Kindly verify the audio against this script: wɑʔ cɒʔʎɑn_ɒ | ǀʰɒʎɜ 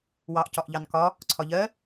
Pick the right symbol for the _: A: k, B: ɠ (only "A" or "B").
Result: A